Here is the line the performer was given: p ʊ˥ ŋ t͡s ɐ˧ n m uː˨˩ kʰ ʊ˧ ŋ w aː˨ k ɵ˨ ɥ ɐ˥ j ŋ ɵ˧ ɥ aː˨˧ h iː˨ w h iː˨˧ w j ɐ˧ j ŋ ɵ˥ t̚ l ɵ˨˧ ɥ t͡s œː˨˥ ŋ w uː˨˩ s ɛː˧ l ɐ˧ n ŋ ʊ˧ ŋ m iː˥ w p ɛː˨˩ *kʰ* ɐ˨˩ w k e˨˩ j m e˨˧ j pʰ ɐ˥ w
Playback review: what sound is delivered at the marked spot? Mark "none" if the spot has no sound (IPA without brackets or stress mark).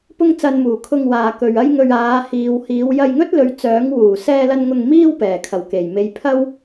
kʰ